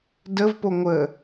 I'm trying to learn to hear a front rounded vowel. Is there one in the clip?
no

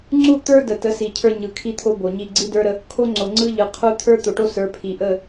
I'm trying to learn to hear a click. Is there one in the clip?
yes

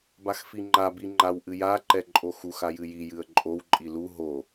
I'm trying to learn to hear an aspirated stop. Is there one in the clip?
no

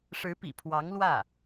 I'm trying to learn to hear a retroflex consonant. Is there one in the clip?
yes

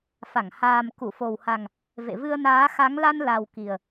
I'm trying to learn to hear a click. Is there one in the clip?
no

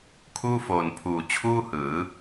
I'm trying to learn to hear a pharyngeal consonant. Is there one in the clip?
no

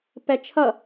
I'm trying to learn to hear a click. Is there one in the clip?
no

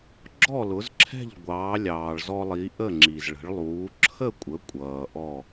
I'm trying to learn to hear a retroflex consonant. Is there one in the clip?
yes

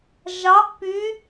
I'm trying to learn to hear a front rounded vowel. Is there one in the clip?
yes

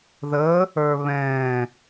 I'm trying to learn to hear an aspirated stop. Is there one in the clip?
no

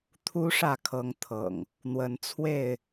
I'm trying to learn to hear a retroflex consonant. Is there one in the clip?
yes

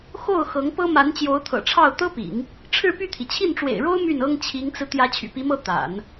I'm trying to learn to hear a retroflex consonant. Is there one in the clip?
yes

